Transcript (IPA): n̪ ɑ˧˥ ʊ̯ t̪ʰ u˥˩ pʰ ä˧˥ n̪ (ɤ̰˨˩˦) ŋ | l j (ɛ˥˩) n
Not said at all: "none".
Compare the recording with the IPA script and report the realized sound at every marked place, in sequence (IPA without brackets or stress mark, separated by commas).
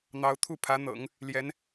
ɤ̰˨˩˦, ɛ˧˥